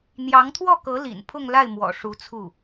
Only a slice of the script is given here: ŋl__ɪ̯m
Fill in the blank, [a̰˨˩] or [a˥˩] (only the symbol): a˥˩